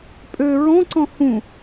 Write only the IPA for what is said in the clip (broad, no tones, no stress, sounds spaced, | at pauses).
pʼ ø ɹ ɔ̃ ǀ ɔ̃ h ũ